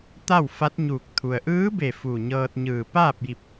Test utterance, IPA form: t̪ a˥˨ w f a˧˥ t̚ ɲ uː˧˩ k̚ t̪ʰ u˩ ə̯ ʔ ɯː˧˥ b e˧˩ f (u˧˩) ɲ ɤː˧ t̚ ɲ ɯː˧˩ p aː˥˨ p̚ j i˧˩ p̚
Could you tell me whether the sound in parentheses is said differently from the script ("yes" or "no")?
no